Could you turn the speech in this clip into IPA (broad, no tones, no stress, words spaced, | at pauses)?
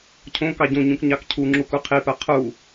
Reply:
cʰõ kɑɟõɲũk ɲɑkcʰuŋ͡ǁuk uqʰipɜ qʰu